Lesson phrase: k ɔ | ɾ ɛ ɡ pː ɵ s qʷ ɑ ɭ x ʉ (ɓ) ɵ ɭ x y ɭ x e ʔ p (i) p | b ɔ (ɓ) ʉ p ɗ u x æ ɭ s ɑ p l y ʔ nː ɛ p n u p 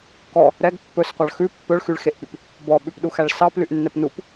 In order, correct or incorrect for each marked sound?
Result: incorrect: pː, incorrect: y, correct

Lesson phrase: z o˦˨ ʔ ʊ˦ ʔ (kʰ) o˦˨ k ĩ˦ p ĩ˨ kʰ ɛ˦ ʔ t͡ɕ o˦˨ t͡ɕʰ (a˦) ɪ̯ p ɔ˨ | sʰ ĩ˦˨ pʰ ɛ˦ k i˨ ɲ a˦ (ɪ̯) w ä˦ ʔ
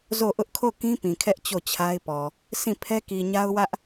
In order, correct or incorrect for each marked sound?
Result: correct, correct, incorrect: ʊ̯

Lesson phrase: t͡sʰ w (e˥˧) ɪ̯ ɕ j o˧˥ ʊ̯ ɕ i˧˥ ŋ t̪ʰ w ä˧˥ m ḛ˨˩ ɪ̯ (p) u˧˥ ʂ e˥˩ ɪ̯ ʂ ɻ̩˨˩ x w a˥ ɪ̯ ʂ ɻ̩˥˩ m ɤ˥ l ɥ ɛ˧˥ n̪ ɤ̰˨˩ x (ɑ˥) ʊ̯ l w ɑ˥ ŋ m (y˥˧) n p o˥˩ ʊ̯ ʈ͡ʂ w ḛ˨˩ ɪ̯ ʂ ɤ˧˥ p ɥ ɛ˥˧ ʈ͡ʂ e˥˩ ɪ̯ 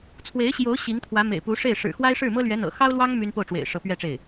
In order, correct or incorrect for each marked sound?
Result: incorrect: e˧˥, correct, correct, incorrect: y˥

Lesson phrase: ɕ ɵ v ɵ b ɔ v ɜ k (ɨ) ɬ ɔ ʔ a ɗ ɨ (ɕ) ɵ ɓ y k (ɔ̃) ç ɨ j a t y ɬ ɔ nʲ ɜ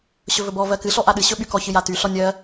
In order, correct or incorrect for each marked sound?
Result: correct, correct, incorrect: ɔ

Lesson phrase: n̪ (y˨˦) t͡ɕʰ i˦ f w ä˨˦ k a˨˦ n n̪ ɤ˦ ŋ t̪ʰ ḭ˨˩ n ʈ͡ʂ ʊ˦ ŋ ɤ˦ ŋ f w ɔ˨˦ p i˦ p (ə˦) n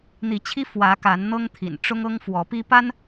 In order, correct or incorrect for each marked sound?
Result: incorrect: i˨˦, incorrect: a˦

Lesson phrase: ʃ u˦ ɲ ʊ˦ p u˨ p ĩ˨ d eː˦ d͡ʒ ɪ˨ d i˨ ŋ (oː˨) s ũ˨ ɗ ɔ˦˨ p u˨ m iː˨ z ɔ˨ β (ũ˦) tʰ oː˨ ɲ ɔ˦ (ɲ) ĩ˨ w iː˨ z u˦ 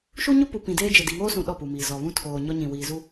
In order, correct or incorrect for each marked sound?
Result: incorrect: oː˦, correct, correct

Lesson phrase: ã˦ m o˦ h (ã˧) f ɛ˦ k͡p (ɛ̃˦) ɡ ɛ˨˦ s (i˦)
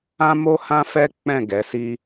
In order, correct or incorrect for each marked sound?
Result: incorrect: ã˦, incorrect: ɛ̃˦˨, correct

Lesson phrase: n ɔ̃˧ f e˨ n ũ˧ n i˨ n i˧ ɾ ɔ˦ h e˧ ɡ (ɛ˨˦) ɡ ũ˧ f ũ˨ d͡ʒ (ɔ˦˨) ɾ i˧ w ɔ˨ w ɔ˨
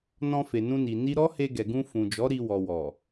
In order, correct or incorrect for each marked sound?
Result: incorrect: ɛ˨, incorrect: ɔ˨˦

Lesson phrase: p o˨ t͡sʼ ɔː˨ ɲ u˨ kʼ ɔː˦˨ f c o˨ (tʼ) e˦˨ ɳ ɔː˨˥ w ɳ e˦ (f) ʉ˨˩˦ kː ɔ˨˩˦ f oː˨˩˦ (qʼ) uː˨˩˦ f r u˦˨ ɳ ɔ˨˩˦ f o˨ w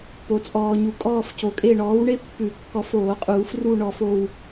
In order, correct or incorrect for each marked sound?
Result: incorrect: kʼ, incorrect: pː, correct

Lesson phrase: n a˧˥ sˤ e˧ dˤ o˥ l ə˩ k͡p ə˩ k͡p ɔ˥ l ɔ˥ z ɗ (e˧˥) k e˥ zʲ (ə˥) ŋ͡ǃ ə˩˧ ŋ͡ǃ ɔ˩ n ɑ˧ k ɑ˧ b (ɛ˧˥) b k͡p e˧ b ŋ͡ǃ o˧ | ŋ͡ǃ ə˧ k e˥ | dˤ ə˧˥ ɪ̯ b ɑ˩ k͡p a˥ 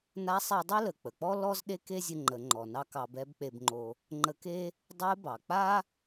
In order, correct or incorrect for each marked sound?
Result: incorrect: e˥, incorrect: ə˧, correct

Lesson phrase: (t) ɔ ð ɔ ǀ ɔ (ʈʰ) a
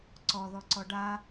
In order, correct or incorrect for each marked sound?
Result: incorrect: ǀ, incorrect: ɖ

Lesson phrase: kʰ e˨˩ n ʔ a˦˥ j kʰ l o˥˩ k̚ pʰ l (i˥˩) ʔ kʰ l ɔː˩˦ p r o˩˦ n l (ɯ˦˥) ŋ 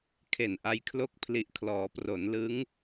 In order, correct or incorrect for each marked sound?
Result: incorrect: i˨˩, correct

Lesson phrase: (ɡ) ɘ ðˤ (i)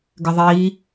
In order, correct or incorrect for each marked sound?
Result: correct, incorrect: iː

